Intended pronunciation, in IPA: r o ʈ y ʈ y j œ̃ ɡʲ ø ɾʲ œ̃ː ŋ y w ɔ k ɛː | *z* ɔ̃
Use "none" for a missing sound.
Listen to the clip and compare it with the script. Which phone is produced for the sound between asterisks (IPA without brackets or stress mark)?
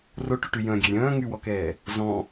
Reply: z